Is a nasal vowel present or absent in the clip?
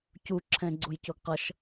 present